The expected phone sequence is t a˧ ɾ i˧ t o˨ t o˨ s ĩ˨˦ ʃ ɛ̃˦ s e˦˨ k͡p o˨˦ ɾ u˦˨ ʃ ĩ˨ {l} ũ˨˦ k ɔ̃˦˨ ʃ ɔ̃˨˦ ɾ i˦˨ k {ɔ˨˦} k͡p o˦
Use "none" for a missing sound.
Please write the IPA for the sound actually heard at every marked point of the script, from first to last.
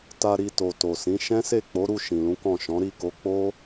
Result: l, o˨˦

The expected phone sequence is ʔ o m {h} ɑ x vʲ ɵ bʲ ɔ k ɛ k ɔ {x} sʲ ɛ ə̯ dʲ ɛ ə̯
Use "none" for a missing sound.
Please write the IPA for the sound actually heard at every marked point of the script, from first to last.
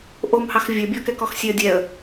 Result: h, x

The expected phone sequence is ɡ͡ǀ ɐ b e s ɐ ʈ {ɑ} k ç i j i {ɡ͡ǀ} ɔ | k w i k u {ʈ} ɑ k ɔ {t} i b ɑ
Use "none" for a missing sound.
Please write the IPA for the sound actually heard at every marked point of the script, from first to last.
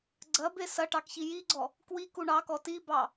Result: ɑ, ɡ͡ǀ, ɳ, t

